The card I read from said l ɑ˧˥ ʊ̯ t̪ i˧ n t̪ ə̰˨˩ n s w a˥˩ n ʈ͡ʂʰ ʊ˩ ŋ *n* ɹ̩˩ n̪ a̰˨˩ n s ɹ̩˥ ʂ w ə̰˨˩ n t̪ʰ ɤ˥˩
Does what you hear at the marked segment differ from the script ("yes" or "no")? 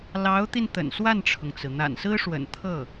yes